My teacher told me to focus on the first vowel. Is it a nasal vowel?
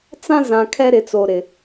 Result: yes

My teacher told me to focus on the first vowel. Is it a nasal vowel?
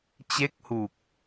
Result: no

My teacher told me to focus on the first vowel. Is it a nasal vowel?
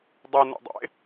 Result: no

